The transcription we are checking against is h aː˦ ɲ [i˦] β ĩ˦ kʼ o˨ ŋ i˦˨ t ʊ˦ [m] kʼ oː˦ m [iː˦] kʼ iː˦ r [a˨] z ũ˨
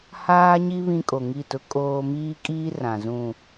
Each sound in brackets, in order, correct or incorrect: correct, incorrect: none, correct, incorrect: ã˨

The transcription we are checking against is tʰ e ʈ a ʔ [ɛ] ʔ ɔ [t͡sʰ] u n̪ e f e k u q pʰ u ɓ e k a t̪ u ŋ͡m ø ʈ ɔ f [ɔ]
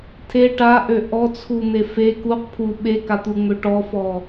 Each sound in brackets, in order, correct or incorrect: incorrect: ø, correct, correct

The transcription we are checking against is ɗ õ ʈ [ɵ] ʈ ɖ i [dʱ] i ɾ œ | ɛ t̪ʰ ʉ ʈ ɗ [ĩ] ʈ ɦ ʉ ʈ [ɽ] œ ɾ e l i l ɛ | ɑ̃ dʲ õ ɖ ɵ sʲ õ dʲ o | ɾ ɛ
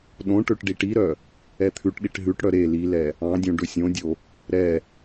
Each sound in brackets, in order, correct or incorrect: incorrect: ø, incorrect: ʈ, incorrect: i, correct

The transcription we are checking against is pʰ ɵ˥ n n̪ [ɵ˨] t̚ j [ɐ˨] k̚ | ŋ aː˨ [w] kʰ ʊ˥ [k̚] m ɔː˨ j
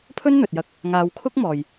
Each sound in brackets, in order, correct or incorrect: correct, incorrect: ɐ˧, correct, correct

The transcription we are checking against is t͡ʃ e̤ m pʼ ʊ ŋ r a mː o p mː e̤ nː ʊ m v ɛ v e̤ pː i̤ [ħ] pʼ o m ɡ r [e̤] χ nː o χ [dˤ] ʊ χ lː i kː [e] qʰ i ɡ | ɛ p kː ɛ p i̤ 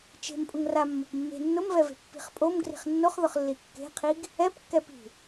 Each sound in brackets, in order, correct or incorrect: incorrect: χ, incorrect: i̤, incorrect: ð, incorrect: e̤

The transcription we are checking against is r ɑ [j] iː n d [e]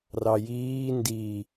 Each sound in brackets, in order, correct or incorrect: correct, incorrect: i

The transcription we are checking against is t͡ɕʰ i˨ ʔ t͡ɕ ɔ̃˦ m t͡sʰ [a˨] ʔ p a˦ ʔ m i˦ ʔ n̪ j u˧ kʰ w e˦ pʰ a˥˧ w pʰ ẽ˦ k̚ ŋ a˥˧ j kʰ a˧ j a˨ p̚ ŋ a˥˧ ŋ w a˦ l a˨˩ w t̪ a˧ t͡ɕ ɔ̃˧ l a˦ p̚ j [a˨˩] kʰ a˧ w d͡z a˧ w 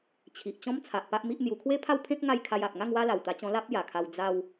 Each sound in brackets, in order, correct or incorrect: correct, correct

